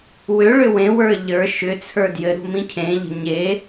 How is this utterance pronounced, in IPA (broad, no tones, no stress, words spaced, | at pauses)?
wʏɭʏ wẽwə˞ ʎə˞ ʃʏt͡sʰə˞ djɘɾṳ mĩcʰẽʎə̤ ɲe